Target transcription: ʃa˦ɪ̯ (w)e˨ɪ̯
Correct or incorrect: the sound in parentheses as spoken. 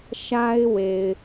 correct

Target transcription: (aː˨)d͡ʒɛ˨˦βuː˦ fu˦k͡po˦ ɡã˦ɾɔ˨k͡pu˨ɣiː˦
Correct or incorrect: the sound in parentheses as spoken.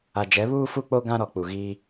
incorrect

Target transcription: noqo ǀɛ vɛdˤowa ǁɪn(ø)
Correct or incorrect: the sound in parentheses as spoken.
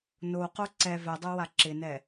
incorrect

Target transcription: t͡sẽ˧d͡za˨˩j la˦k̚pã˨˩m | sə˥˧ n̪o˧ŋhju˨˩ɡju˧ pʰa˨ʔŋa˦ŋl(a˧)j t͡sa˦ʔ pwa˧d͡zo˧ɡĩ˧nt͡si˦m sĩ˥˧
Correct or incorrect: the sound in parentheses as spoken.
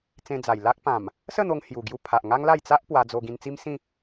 incorrect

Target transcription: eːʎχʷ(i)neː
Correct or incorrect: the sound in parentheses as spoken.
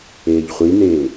correct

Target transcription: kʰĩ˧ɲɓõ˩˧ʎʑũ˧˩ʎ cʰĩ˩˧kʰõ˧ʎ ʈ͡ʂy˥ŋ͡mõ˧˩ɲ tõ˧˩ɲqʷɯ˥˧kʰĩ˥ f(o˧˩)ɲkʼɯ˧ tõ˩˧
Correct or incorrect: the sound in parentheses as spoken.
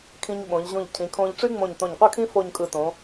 incorrect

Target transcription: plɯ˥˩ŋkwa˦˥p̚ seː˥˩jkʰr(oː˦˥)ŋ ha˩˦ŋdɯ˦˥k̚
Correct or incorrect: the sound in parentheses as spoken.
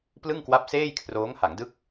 correct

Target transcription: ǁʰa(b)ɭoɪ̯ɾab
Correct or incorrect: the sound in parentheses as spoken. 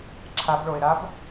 correct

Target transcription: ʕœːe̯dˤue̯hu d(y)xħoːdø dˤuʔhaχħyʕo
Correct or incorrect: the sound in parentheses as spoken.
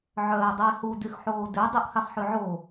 correct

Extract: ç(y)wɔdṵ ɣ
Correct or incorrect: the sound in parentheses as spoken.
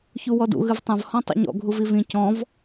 incorrect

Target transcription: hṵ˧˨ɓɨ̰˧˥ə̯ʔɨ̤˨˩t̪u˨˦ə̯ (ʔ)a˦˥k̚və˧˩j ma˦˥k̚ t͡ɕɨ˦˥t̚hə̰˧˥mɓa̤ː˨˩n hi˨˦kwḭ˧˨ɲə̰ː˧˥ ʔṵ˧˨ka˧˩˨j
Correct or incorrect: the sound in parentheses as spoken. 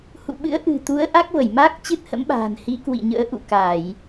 correct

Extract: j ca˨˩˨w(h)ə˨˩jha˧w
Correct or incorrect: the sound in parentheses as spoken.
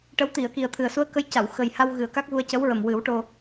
incorrect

